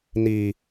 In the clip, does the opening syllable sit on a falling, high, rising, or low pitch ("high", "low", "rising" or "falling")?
low